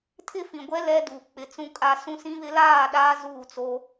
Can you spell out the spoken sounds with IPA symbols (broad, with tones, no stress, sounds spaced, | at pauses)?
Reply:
tʰ ɪ˦ f ĩ˨ ɡʷ ɛ˦ l ɛ˦ d u˨ k͡p ɪ˨ t͡s ũ˨ kʼ a˨ s ũ˦ s ĩ˦ β ɪ˦ l aː˦˨ ɗ aː˦ z uː˦˨ t͡s o˦